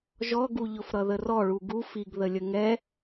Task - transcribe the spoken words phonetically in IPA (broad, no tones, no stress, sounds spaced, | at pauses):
ʒ ɔ ɡ u ʎ ʊ f ɾ ʌ ð ə r ɔ ɭ u ɡ u f i ɡ ð ə lʲ ə ŋ ɛ